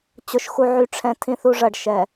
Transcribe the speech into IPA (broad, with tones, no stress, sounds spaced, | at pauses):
t͡ɕ ʊ˨ ʃ x u˨ ʕ y˨ ʈ͡ʂʰ ɛ̃˨ tʰ ĩ˨ θ u˨ ʐ ɐ˨ ɖ ʃ ɛ˨